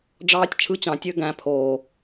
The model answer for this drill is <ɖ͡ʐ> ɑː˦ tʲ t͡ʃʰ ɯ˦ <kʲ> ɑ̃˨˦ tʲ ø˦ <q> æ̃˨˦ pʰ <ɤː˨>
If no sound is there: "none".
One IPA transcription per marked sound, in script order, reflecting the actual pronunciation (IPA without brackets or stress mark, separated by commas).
ɖ͡ʐ, t͡ɕ, ɡ, oː˨